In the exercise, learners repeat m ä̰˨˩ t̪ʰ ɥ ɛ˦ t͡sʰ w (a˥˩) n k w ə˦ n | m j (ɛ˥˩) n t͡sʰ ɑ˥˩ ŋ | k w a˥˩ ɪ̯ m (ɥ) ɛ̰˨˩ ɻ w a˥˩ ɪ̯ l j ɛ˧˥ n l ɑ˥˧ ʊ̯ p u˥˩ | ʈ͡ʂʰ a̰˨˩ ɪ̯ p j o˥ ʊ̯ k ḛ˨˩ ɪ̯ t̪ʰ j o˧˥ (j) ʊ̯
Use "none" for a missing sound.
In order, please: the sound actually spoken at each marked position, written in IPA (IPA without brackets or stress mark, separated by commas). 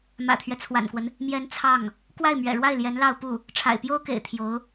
a̰˨˩, ɛ˧˥, ɥ, none